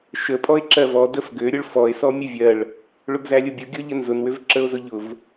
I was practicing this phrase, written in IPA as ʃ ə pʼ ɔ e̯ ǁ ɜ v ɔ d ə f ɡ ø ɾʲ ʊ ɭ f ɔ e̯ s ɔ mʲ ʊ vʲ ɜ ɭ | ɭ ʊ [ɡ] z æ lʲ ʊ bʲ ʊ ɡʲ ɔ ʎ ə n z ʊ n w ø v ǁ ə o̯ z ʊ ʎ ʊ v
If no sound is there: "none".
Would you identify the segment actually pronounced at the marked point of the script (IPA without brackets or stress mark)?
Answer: ɡ